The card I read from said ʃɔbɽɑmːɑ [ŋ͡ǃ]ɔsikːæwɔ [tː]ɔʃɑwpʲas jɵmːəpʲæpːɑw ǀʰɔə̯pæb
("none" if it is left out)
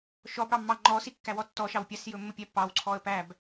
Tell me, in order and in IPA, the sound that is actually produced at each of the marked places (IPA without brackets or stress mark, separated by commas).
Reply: ŋ͡ǃ, tː